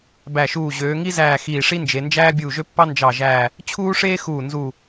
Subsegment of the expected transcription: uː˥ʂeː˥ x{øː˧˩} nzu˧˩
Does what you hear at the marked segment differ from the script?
yes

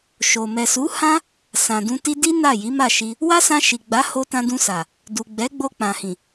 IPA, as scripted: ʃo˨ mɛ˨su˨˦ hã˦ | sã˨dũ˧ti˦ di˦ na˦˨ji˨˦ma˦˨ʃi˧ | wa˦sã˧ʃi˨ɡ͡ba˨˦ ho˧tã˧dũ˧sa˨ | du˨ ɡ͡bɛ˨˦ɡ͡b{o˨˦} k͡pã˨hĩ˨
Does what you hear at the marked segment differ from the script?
yes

